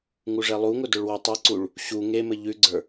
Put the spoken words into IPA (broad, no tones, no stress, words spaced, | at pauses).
ŋuʐɛlˠuŋʊ dʊɭwʉtˤeǀuɭ | ɕu ŋemɘ ʎʉɡ͡ǀə˞